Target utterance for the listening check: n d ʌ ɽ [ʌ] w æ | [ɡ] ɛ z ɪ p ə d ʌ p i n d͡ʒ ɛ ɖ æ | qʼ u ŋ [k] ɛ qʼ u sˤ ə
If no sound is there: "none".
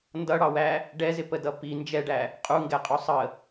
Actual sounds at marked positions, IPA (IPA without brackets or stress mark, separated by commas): ɑ, ɖ, ɡ